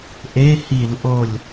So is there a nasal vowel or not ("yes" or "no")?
no